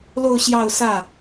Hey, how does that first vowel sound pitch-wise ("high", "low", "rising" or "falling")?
falling